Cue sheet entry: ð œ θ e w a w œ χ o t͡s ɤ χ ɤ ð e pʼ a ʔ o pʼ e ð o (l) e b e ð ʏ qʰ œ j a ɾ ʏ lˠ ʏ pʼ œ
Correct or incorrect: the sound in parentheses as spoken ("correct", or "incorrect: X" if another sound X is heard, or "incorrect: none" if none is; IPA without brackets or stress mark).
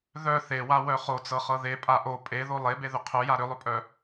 incorrect: lˠ